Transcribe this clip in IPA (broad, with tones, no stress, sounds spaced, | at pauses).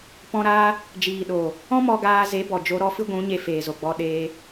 p ɔ̃˧ ɾ aː˦ | d͡ʒ iː˨ ɗ oː˨ | ɔ̃˦ m ɔ˧ ɡ aː˧ z e˨˦ b ɔ˨ d͡ʒ o˧ ɾ ɔ˦ f ɨ˦ ɡʷ ũ˨˦ ɲ e˧ f eː˨ z o˨ ɡ͡b ɔ˧ ɗ eː˧